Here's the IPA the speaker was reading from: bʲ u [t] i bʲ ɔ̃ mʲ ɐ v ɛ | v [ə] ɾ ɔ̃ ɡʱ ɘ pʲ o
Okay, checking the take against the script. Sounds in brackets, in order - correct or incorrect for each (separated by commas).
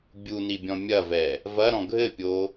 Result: incorrect, incorrect